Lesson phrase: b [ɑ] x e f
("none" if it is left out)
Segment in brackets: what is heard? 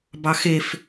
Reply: ɑ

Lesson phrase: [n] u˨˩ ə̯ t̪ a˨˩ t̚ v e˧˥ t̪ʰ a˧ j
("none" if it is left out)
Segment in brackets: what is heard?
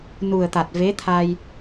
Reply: n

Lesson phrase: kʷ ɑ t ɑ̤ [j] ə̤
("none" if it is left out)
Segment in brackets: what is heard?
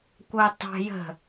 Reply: j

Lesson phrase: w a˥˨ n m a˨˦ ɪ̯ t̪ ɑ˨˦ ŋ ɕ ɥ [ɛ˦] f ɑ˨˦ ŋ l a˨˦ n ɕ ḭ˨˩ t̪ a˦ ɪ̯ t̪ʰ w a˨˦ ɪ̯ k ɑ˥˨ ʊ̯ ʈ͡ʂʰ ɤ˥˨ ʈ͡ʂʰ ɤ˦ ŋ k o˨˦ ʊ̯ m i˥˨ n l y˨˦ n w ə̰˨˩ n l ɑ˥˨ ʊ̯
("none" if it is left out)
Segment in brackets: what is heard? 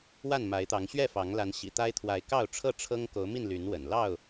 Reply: ɛ˥˨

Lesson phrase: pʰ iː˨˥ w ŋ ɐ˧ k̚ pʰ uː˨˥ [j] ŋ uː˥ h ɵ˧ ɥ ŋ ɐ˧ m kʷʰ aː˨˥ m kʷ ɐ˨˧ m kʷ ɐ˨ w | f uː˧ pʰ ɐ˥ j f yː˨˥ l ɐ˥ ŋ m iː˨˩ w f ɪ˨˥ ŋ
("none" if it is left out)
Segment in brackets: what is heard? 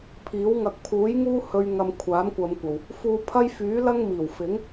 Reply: j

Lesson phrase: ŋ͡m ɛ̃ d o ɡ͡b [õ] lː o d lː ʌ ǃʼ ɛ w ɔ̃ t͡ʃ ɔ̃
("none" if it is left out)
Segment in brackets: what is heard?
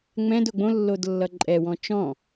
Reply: õ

